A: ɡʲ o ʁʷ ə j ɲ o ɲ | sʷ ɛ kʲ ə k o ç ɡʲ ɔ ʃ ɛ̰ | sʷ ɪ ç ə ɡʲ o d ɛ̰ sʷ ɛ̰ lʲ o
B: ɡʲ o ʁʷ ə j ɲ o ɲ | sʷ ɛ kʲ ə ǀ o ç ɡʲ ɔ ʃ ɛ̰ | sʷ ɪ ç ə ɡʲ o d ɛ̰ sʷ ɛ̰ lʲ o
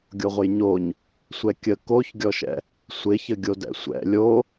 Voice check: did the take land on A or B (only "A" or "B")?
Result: A